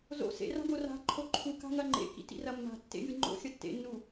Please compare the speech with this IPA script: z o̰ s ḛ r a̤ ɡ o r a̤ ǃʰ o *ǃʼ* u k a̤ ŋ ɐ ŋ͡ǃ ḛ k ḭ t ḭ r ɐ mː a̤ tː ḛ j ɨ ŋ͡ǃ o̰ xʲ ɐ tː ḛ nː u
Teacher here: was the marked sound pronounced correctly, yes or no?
no